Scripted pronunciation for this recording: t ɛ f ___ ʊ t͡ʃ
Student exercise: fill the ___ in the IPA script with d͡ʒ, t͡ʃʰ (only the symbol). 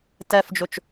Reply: d͡ʒ